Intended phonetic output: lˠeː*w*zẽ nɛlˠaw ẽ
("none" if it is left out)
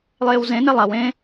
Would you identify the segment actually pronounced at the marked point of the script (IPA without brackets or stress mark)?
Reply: w